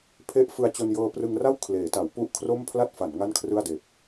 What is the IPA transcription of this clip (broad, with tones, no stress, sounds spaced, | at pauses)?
pʰ e˦˥ ʔ f ɯ˧ a̯ t͡ɕ o˧ n j ɤː˧ p r ɯ˧ ŋ r a˥˩ w kʰ l eː˩˦ t a˩˦ w p u˥˩ ʔ kʰ r o˥˩ m pʰ l a˥˩ t̚ f a˩˦ n ŋ a˥˩ n kʰ r ɯ˥˩ a̯ d eː˨˩ p̚